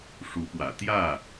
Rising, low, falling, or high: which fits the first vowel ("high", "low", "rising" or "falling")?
rising